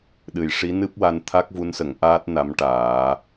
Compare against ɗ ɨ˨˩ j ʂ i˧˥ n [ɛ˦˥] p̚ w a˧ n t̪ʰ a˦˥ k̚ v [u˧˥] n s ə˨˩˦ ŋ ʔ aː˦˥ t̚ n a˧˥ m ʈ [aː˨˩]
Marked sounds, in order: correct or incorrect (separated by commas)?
incorrect, correct, incorrect